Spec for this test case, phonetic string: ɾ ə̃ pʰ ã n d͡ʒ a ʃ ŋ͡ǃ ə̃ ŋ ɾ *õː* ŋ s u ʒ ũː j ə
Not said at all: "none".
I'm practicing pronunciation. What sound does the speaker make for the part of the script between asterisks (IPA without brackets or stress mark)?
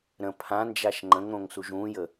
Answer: õ